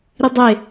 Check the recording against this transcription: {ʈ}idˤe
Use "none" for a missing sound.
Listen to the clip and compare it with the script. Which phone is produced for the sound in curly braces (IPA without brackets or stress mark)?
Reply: ɾ